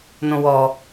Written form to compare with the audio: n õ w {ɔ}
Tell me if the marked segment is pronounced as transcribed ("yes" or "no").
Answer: yes